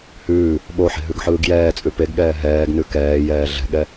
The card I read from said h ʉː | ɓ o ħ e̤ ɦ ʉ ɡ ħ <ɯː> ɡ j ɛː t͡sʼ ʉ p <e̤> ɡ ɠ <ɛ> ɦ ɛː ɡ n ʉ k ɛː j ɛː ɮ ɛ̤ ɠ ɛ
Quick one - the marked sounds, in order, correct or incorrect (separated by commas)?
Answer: correct, incorrect, incorrect